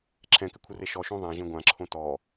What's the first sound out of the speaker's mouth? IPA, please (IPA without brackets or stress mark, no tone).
ǁʰ